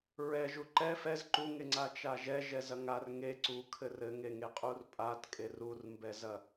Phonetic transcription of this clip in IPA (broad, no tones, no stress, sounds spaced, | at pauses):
ɹ ɛ ʒ u ǃ ɛ f ɛ z ǃ u ŋ e ŋ͡ǀ a t͡ʃ a ʒ ɛ ʒ ɛ z ɐ ŋ a r ŋ e ǀ u kʰ ɘ r ɘ ŋ e ŋ e qʼ u r pʼ a t kʼ e r u r m b ɛ z ɐ